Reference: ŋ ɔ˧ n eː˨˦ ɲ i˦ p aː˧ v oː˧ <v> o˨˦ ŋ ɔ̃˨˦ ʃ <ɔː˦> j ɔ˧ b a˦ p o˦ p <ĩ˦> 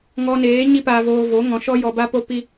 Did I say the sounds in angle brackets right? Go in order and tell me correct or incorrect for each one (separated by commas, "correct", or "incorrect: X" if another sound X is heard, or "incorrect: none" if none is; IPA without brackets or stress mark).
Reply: correct, incorrect: ɔ˦, incorrect: i˦